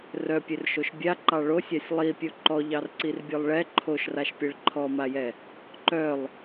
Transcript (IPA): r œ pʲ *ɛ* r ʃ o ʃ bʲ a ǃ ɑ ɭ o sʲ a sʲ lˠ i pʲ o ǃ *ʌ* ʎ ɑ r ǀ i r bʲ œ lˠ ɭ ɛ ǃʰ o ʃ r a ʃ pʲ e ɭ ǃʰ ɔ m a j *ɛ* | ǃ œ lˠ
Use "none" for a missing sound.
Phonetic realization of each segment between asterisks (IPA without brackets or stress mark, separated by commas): e, ɔ, ɛ